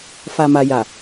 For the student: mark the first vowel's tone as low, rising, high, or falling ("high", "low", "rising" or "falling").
low